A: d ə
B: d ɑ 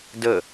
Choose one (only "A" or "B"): A